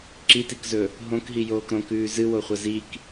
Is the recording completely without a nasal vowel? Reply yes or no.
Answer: no